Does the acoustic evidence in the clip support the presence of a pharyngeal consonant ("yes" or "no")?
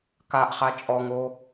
no